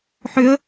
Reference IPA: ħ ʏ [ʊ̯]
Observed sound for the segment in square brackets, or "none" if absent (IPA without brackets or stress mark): ə̯